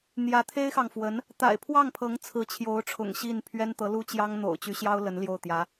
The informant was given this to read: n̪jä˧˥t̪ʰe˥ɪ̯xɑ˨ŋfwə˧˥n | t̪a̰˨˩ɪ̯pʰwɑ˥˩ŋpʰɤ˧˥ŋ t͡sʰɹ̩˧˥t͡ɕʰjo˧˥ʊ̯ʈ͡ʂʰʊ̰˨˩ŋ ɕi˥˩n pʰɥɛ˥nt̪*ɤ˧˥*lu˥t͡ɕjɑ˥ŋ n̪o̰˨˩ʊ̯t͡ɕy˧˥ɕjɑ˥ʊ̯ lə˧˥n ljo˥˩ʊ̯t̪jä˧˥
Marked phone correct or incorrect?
correct